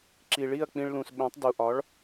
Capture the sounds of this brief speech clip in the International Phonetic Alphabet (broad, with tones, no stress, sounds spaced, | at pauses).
ǁ i˩ ɭ i˥˩ ɐ̯ k͡p ĩ˧ ɭ l ũ˩ s ɓ ẽ˩˥ tˤ d u˩ ʔ ɒ˩˥ ɭ